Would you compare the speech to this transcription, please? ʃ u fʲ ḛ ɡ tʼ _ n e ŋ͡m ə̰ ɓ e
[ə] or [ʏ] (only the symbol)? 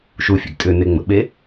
ʏ